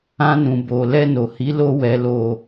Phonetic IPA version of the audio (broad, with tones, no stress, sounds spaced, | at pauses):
ã˧ n ũ˨ b o˨ l ɛ˧ n o˨ h i˨˦ l o˧ w ɛ˨ l o˨